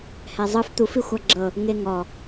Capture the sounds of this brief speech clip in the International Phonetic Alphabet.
h ɛ zˤ ɯ f t̪ u f i xʷ a ɡ͡ǁ ɤ | ŋ e ŋ ɔ

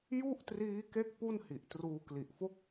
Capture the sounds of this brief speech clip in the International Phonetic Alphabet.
j u˥˩ ʔ t r iː˦˥ k e˥˩ k̚ p u˥˩ n h i˨˩ ʔ t r uː˧ k l i˨˩ ʔ f o˥˩ k̚

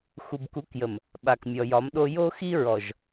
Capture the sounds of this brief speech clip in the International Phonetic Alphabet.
x u˨ b k u˨˦ k j ə˨ m | ɓ a˨ k mʲ ɔ˨ j ɒ˨˦ m ɗ o˦ j o˦ x i˦ ɹ ɔ˨ ʒ

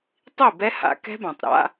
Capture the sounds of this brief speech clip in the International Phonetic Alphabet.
tˤ i˥˩ b ɛ˦˥ h a̰˧ k ɛ̤˦˥ b ã˩ tˤ ɾ a̰˧˥˧

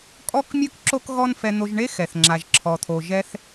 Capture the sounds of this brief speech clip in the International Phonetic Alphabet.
kʼ ɔ˥ k mʲ ɯ˥ k ǁ o˥ k ɣ ɔ˥ n f ɛ˧ n̪ o˧ ʒ ɳ e˥ x ɛ˩ θ ŋ͡ǁ a˩ ʒ ǁʰ ɔ˩ t̪ʰ o˩ ʒ ɛ˧ θ

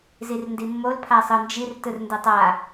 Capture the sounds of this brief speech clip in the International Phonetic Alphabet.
z i r n d i mː o l pʰ a sˤ ɯ n d͡ʒ i r t ɯ r n d ɯ tˤ a

